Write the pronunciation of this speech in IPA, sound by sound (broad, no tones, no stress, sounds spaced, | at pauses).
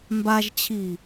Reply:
m b a ʒ t͡ɕʰ i